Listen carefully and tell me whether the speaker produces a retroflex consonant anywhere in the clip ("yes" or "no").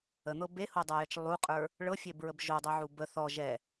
yes